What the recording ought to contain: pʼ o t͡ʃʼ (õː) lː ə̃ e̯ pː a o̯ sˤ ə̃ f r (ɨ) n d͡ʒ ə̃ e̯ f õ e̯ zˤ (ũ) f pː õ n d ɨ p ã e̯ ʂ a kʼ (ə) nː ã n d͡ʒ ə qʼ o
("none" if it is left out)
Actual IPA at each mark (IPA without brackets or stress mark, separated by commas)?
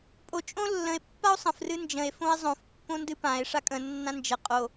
õ, ɨ, õ, ə̃